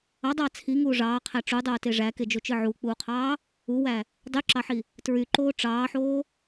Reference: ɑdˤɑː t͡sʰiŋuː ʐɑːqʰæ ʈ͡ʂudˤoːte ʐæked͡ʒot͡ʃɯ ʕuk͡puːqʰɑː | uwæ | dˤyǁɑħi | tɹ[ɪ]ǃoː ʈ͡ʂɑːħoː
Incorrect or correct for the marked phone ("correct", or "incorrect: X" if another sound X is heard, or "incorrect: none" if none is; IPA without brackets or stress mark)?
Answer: incorrect: y